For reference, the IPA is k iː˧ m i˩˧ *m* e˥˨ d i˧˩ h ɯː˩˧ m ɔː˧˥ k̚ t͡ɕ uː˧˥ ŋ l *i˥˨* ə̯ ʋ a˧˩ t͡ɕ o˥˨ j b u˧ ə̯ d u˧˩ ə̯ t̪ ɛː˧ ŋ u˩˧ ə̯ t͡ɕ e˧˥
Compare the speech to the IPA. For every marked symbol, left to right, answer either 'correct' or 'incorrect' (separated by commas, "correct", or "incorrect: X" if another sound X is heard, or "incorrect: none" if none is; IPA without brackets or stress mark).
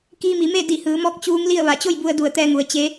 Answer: correct, correct